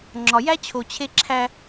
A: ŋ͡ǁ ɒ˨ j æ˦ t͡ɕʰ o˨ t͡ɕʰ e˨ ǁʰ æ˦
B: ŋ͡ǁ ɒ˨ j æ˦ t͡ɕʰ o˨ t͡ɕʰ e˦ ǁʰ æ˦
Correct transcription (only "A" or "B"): B